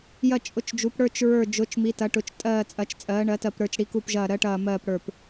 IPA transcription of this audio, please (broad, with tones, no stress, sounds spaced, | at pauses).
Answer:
j ɐ˦˨ t͡ʃʼ ʊ˨˥ t͡ʃ d͡ʒ u˨˥ p ɽ ə˞˦˨ t͡ʃ ɹ ə˞˦˨ d͡ʒ ʊ˨˥ t͡ʃ m i˨˥ t ɐ˨˥ ʈ ʊ˨˥ t͡ʃ tʼ ɜː˦˨ t͡sʼ ɐ˨˥ t͡ʃ t͡sʼ ɜː˨˥ ɳ ɜ˨˥ t ɜ˦˨ p ɾ ə˞˦˨ t͡ʃ ɽ i˨˥ k u˦˨ p ʒ ɐː˦˨ ɾ ɜ˨˥ ʈ ɐː˦˨ m ɜː˦˨ p ɽ ə˞˦˨ p